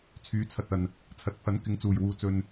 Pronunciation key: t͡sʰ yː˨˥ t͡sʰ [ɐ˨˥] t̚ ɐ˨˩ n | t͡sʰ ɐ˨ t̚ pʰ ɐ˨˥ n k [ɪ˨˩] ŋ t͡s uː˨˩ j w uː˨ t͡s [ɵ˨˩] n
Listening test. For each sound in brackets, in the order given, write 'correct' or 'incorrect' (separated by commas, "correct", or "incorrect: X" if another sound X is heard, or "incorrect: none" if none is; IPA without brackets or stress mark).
incorrect: ɐ˨, incorrect: ɪ˨˥, incorrect: ɵ˨